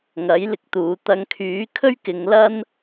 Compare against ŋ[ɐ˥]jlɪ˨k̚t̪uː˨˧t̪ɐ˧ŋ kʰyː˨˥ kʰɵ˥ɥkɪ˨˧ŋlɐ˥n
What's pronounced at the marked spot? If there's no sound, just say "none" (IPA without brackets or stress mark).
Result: ɐ˨˥